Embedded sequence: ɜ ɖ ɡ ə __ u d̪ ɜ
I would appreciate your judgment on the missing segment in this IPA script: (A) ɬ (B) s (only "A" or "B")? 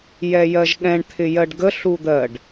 A